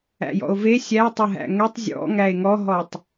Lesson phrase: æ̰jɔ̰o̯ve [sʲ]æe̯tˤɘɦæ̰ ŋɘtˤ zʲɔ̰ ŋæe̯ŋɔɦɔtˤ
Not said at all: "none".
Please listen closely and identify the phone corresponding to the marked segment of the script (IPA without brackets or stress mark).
sʲ